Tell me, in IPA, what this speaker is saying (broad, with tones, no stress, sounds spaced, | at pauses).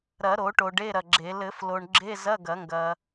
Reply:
ɾ ɐ˨˩˦ ɾ o˨˩˦ ʈ o˨ ɖ e˧˥˧ ɾ ɐ˨ ɡ͡ǁ e˨˩˦ l ɘ˨˩˦ f l o˨ ɳ ɡ͡ǁ e˧˥˧ z ɐ˧˥˧ ɡ ɐ˨˩˦ ŋ ɡ ɐ˨